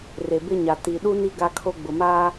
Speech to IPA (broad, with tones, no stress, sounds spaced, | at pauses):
r e˨ b ɪ˦ ɲ a˨ t i˨ ɗ u˦ n i˦ ɡ a˦ kʰ o˦ ɡ͡b ʊ˨ m aː˦